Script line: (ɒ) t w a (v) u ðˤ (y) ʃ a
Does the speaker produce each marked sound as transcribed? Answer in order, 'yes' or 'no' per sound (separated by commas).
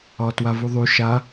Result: no, yes, yes